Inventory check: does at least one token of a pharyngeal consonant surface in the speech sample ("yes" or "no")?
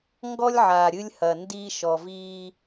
yes